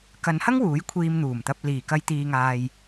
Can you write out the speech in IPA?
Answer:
k ɐ˨˧ n h ɐ˥ ŋ w uː˨˥ j kʷʰ iː˧ m n̪ uː˨˩ m t̪ ɐ˧ p̚ l iː˨˩ k ɐ˧ j t̪ iː˨ ŋ aː˨ j

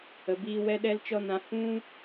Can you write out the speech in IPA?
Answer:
ə˨ b iː˧ w ɛ˦ ɗ ɛ˦ l t͡ʃ ɔ˦ n ã˧ h ũ˦

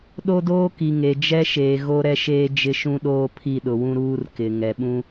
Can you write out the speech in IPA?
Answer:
ɗ o˦ d oː˦ k i˨ ŋ e˨ d͡ʒ ɛ˦ ʃ eː˨ ɣ o˦ ɾ ɛ˦ ʃ eː˦ d͡ʒ ɪ˦ ʃ ũ˦ ɗ oː˦ pʰ i˦˨ ɗ ʊ˨ w ũ˦ ɾ uː˦ r k ɪ˨ ŋ ɛ˨ ɓ ũ˦

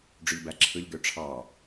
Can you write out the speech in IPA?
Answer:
ɖ͡ʐ y ʎ b æ ǁʰ ɯ ʎ ɡ ø ʈ͡ʂʰ ɑ

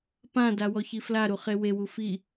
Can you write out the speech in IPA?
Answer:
p ã d a w ɔ ç i f l a ɾ u χ e w e w u f i

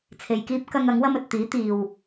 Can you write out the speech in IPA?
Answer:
t͡sʰ e˨ j k iː˥ p̚ k ɐ˥ ŋ ɐ˨˥ ŋ w ɐ˥ m ɵ˨ t̚ t̪ iː˨˥ t̪ iː˨ w

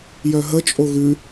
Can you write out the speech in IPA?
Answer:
j œ ɦ ə t͡ʃʼ o ɣ ʉ

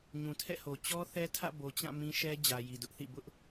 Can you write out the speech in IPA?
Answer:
ɲ ũ˨ tʰ ɛ̰˦˨ h o˨ t͡ɕ ɔ˦ θ ɛ˦ tʰ ä̰˦˨ b o˨ t͡ɕ ã˦˨ m ĩ˦ ʃ ɛ˦ d͡ʑ ä˨ j i˨ d ʊ˦ ʔ θ ḭ˦˨ b ʊ˦ ʔ

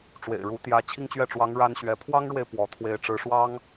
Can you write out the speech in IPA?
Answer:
ʈ͡ʂ w ḛ˨˩ ɪ̯ ɻ u˧˥ t̪ j ä˧˥ t͡ɕʰ i˥˧ ŋ t͡ɕ ɥ ɛ˥˩ ʈ͡ʂ w ɑ˧˥ ŋ ɻ a˥ n ɕ ɥ ɛ˧˥ pʰ w ɑ˥ ŋ ɻ w e˨ ɪ̯ p w ɔ˧˥ t̪ʰ w e˥˩ ɪ̯ ʈ͡ʂ ɻ̩˧˥ ʂ w ɑ˥ ŋ

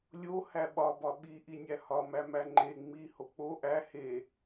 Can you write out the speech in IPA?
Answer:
lʲ o h æ ɓ ɒ b ɒ ɓ i ʔ i nʲ æ h ɒ m æ m æ ŋ͡ǃ e ŋ͡m i h o k͡p o ʔ æ h e

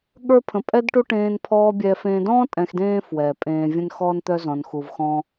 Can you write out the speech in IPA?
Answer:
ɠ ə˞˦ pʰ ə̃˧ pʼ ɛ˦ d ʈ u˦ ʈ ẽː˧ n pʰ ɔː˧ bʲ ɛː˧ f ẽ˧ d ɔ̃ː˦ tʼ ɛ̃˧ x d ẽː˦ f w ɛː˨ pʼ ẽː˧ vʲ ə̃˦ n x ɔː˦ n t̪ œ˦ z ɔ̃˧ n x u˧ v x ɔ̃˦

